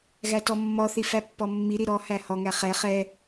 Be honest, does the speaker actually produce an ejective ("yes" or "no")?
no